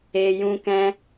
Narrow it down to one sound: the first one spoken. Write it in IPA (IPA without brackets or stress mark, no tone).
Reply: e